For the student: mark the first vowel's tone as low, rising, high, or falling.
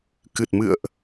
low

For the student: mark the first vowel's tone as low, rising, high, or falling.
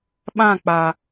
falling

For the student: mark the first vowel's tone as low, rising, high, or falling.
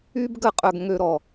high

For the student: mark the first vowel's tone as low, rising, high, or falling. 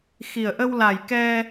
low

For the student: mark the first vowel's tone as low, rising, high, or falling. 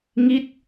falling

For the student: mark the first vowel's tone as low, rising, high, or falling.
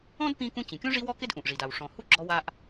high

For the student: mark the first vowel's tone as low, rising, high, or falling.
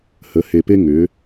rising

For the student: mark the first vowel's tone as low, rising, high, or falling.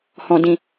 low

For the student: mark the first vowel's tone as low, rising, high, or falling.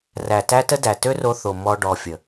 low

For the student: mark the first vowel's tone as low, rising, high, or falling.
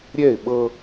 falling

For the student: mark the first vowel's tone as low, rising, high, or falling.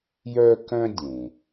high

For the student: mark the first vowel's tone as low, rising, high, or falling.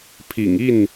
low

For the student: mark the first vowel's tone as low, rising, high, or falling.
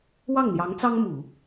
falling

